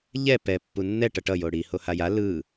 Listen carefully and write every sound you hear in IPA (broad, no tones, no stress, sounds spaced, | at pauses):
ʎ ɛ p ɛ pː u nː ɛ ʈ ʌ ʈ ʌ j o ɽ i h o h a j a l ɯ